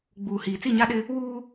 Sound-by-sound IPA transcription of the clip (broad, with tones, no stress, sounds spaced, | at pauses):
ɡ͡b uː˨ h iː˨ t͡s i˦˨ ɲ a˦ ɗ ɪ˦ | w uː˦